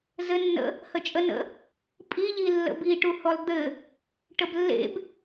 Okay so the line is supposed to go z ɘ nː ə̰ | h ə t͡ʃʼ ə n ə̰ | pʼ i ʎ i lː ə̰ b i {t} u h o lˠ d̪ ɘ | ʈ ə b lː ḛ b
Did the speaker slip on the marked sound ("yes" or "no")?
yes